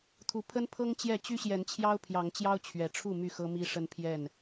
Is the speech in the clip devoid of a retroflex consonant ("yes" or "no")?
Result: no